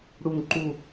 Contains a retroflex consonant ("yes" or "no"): yes